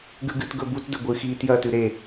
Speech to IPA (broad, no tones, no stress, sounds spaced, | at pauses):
ɡ ʉ ɡ ɨ t ɡ ɵ b u t d ɵ ɡʷ ɨ x iː t j ɐː t ʉ ɾ e